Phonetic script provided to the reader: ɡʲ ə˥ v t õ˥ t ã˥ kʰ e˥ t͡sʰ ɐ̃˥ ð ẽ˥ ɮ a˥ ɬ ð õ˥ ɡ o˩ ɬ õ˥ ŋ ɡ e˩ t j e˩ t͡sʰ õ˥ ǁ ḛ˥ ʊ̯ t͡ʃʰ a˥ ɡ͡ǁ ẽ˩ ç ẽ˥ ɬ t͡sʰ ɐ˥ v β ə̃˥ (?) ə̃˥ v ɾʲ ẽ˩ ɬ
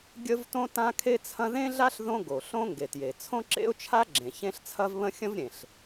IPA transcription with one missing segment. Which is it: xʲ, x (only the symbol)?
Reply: xʲ